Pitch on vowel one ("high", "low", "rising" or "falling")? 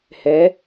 rising